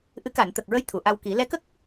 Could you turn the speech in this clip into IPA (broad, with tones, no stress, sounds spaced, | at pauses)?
ʔ ɨ˧˥ k a˨˩˨ n t̪ ə˨˩ k̚ ɹ ə˧˥ j t̪ʰ u˨˩˨ ʔ a˧ w k i˨˩˦ l ɛ˧˥ k ə˦˥ k̚